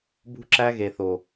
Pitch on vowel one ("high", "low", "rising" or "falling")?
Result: high